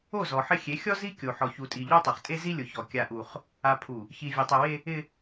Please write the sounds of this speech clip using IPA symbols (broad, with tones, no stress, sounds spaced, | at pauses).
o˦˨ z ɔ˨ ħ ɪ˦ xʲ e˨˦ xʲ ɔ˦ z i˦ kʲ o˨ ħ ɔ˨ ç u˨ tʼ i˨ ʎ o˦ tˤ o˨ χ tʼ e˦ z i˦ lʲ ʊ˨ ç ɔ˨ kʲ a˦ ʔ u˦ χ | a˨ pʰ u˨ | ç i˨ vʲ e˨ tˤ e˨ w e˦ | ɪ˦